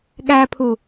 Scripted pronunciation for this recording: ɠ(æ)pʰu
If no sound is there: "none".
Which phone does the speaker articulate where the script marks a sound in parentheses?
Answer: æ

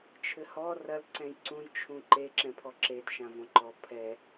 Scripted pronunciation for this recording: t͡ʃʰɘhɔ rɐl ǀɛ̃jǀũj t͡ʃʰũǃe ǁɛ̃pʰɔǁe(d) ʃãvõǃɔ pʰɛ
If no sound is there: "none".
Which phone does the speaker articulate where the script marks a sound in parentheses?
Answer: d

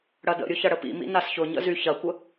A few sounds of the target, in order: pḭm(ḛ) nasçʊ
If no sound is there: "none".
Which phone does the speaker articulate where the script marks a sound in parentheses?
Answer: ḭ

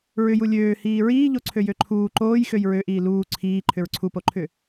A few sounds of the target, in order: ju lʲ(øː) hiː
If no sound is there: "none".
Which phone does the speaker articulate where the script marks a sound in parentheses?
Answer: øː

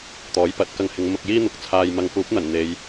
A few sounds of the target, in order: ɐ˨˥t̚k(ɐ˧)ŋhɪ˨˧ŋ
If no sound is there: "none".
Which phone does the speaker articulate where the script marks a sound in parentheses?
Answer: ɐ˧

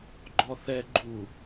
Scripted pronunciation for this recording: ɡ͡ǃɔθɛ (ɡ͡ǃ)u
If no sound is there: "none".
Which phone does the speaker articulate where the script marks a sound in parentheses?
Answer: ɡ͡ǃ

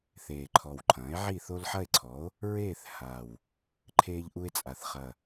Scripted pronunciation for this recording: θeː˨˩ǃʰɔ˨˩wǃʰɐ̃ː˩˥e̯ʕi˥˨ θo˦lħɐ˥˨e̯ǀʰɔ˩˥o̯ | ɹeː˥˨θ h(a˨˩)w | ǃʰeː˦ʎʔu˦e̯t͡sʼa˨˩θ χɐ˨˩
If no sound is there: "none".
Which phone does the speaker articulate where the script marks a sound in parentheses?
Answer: a˨˩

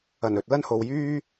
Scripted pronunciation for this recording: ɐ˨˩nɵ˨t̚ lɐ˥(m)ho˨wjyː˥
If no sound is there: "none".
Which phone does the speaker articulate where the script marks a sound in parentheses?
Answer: n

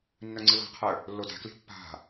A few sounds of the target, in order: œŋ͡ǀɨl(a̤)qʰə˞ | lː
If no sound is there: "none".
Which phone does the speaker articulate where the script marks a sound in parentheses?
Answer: a̤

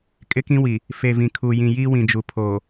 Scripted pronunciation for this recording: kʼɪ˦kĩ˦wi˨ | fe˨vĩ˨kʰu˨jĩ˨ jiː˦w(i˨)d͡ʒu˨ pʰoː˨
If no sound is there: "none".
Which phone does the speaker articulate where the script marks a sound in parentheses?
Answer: ĩ˨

